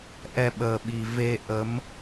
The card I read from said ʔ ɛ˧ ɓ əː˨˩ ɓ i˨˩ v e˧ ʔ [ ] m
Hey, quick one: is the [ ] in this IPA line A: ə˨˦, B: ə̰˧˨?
A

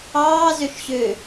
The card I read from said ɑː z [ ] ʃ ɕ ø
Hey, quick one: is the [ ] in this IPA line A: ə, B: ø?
B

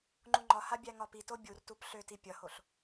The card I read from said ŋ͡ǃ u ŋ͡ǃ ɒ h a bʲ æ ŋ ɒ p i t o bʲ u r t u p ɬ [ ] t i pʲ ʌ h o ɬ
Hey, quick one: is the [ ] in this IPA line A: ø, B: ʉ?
A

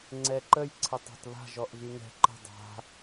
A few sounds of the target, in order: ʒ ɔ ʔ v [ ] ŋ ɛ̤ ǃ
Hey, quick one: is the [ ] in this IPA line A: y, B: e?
A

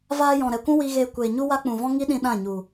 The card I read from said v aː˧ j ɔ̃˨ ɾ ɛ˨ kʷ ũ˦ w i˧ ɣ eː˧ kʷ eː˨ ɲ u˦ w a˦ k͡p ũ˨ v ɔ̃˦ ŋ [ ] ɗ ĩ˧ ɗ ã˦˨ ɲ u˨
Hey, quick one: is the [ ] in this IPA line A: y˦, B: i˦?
B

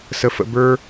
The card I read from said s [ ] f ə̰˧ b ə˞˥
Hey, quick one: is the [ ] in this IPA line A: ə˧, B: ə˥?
A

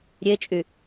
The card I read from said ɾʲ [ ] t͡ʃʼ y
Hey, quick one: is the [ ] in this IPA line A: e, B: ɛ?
A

